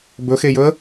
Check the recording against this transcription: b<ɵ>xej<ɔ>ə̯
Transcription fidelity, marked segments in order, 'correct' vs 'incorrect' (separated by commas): correct, incorrect